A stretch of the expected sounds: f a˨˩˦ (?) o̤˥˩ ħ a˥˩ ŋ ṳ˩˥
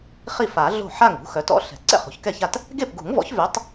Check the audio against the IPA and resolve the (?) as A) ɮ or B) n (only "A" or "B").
A